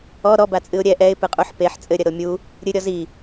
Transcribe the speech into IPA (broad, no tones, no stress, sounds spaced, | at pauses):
ɔ ɾ ɔ b a t͡sʼ ɨ ʊ̯ ɾʲ ɛ ʔ ɛ ɪ̯ p ɨ qʼ u ħ p e ħ t͡sʼ ɘ ɾʲ ɐ ɾ o mʲ u | ɾʲ ɨ ɾʲ ɔ z i